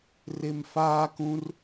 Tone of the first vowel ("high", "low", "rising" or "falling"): low